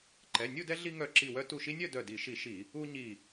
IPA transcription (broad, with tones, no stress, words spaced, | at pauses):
ǃɛ˩˧˩nʲu˥˨dɛ˦ ɮi˦ŋœ˧˩ǁi˧˩wœ˦ tu˧˩ʃi˦nʲœ˥˨ dœ˧˩di˧˩˧ʃi˧˩˧ʃi˧˩˧ | u˦ɲi˧˩